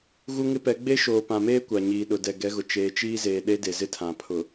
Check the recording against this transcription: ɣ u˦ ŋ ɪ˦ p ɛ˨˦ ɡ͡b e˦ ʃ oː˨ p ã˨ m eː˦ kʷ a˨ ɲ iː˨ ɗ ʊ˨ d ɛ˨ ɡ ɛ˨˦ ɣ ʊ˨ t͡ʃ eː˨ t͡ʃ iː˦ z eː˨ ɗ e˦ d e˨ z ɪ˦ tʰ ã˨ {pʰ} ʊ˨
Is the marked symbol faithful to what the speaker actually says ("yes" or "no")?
yes